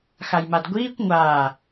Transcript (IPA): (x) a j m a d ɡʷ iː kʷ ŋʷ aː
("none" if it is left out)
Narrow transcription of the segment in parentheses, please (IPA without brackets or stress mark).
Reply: x